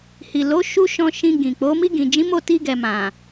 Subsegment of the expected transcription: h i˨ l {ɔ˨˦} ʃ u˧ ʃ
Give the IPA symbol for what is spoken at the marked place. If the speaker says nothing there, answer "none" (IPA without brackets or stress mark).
o˨˦